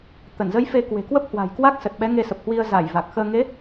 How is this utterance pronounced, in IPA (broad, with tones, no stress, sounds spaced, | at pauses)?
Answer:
t̪ ə˧˩ n z ə˨˦ j f e˧ k w e̤˨˩ k w ə˦˥ p̚ h w a̤˨˩ j k w a˦˥ k̚ s ə˨˩ t̚ ɓ ɛ˨˦ ŋ e˧ s ə˨˩ p̚ h w i˧ ə̯ z a˧˩ j v a˨˩ k̚ x əː˧ ŋ e˨˦